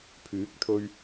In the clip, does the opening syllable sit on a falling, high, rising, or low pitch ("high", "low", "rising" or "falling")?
rising